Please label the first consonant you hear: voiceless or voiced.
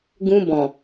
voiced